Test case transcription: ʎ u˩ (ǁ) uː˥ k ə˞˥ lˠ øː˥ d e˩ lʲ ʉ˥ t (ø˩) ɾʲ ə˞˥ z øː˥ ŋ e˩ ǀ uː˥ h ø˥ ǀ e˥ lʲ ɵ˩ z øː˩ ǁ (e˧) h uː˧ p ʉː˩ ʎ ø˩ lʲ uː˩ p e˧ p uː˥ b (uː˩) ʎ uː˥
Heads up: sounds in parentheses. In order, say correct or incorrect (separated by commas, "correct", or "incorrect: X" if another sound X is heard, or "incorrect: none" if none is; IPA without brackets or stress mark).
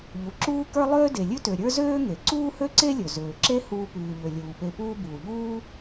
correct, correct, incorrect: e˥, correct